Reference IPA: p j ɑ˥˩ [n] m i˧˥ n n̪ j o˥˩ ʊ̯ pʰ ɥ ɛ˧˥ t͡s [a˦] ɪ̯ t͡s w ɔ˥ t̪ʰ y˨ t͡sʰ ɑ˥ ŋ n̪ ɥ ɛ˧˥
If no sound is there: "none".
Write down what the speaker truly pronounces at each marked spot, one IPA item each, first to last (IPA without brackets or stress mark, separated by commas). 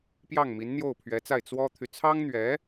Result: ŋ, a˥˩